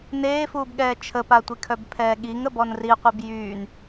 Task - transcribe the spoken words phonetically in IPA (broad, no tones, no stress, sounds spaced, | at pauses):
n eː f uː b ɠ ɛː t͡ʃʰ ə p a tʷ i kʰ œ b pʰ ɛː ɠ i ŋ ə b ɔ n r i qʷ i b j yː n